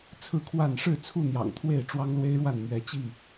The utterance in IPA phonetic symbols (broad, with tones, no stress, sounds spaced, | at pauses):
t͡sʰ ɹ̩˥˨ kʰ w a˥˨ n ʂ ɻ̩˥˨ t͡sʰ u˥˨ n̪ j ɑ̰˨˩ ŋ t̪ʰ w e˥˨ ɪ̯ ʈ͡ʂ w ɑ˦ ŋ l w e˦ ɪ̯ ɻ w a˥˨ n m ɥ ɛ˨˦ t͡ɕ i˥˨